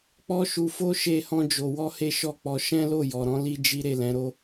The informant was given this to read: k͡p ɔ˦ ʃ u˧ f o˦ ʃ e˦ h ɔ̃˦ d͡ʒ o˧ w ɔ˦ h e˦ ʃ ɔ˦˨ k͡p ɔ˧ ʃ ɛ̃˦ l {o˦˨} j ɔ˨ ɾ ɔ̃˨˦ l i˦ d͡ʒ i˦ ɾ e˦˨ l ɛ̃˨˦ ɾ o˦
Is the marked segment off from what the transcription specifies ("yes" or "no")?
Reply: no